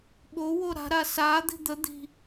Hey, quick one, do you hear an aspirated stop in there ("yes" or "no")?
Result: no